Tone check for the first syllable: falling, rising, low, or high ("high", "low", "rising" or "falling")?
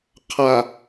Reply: low